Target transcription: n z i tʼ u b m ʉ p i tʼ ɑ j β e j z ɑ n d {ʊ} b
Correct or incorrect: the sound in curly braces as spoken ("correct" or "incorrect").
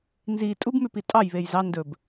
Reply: incorrect